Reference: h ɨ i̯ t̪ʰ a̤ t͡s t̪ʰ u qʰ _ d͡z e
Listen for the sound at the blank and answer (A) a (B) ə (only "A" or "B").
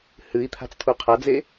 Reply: A